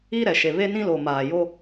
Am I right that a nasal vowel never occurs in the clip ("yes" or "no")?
no